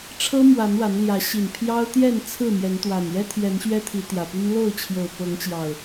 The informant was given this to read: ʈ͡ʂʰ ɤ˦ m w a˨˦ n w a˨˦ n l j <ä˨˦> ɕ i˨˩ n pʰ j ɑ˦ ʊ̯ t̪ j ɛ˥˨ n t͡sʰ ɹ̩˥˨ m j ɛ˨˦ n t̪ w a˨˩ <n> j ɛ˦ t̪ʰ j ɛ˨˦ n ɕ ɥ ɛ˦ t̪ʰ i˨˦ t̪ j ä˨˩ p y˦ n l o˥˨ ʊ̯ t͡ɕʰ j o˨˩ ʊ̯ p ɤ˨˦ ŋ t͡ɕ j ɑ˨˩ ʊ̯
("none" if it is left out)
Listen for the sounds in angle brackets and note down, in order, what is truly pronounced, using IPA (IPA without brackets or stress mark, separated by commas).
ä˨˦, n